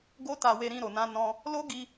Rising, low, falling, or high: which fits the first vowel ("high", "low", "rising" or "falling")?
high